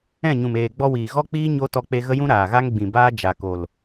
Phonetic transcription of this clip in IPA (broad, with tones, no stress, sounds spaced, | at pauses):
ɛ̃˦˨ ɲ ũ˨ m eː˨ ɡ͡b ɔ˧ w iː˨ ɣ ɔ˦ k͡p iː˦ ɲ o˦ t ɔ˧ k͡p e˧ ɣ ə˦ j ũ˦ ɾ aː˨ ɣ a˦ ŋ ɡ͡b ĩ˨ b aː˦ d͡ʒ a˨ k o˨ l